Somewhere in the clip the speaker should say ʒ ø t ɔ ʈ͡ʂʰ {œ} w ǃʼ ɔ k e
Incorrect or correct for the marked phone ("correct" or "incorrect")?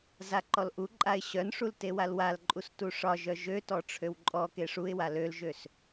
incorrect